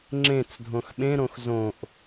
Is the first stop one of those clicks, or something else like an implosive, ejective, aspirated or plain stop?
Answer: click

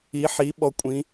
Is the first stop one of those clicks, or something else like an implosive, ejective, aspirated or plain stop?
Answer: implosive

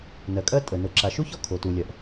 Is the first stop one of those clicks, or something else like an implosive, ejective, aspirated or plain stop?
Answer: ejective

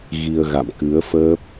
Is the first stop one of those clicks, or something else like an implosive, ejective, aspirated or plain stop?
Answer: plain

